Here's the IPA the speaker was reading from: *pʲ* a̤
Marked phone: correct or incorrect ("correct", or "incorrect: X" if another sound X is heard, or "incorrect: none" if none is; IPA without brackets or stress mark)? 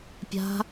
correct